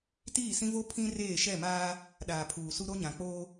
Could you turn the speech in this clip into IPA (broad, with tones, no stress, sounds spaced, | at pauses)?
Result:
t iː˦˨ s ĩ˦ v o˦ pʰ ĩ˦ r eː˦˨ ʃ ɛ˦˨ m aː˦ | ɗ aː˨ pʰ uː˨ s u˦ ɾ o˦ ɲ ã˨ k͡p oː˦